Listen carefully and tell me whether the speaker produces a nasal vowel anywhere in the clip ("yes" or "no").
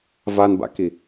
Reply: no